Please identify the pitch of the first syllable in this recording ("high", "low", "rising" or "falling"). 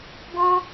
high